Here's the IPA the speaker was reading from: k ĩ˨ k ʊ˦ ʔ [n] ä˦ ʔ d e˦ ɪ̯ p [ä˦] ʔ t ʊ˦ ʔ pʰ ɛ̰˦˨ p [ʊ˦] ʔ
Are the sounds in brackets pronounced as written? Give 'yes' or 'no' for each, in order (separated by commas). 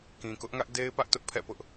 no, yes, yes